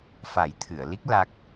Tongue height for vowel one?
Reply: low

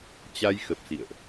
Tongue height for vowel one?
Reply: low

